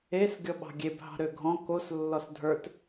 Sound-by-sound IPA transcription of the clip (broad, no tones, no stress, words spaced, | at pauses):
es ɡʲɔɓɑ̤ɡʲebɦɑ̤ ɾøɡʱɔ̃ kos lːɔsdʱə˞t